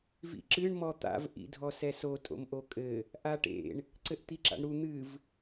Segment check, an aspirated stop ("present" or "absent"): absent